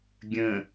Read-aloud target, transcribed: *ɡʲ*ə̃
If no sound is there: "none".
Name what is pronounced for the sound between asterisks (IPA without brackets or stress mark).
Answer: ɡʲ